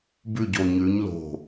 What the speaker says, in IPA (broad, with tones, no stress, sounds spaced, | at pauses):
b ʉ˥˧ ɟ o˧ ɲ ʉ˧˥ ɲ l o̤˧˩